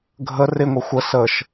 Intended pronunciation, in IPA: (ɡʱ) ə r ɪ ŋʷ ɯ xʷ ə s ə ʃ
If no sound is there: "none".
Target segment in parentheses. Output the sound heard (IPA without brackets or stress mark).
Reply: ɡʱ